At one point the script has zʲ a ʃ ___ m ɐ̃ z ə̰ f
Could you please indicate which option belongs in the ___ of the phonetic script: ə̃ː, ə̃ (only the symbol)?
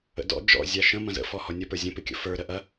ə̃